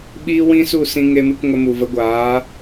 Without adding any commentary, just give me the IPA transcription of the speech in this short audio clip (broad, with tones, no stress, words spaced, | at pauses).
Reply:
ɓiː˦wĩ˦su˦˨ sĩ˧ŋe˧mɨ˧k ŋə˧mu˨ və˨˦ɡʷaː˨˦